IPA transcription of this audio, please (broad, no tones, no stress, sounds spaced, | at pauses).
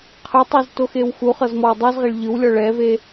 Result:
qʰ ɯ tˤ i z t o x e w x u χ ɤ z m ɔ w dˤ ɤ z ʁ e ɭ ʎ ɯ w lʲ ɔ ɭ ɛ v e